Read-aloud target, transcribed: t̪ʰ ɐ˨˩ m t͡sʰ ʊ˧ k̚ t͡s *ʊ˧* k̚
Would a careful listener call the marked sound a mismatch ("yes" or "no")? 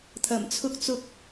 no